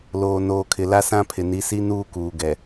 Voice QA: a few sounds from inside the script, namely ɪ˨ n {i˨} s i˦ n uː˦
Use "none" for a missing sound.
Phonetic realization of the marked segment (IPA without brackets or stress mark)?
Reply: i˨˦